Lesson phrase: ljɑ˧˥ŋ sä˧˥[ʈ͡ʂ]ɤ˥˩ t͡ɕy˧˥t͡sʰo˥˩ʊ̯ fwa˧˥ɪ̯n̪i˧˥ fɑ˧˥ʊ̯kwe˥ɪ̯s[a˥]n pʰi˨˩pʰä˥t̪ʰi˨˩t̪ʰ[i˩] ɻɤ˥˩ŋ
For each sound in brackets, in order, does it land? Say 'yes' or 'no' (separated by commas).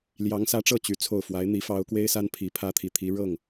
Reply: yes, yes, no